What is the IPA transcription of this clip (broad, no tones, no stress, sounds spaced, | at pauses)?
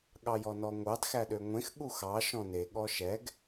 ɠ ɑ j ɔ n ɔ ŋʷ ɑ d x æ ɗ ø ŋʷ ẽ x ɠ u x ɑ ʃ ɔ̃ n e ɠ ɔ ʃ ɛ ɡ